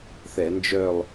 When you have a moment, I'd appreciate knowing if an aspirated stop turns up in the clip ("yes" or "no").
no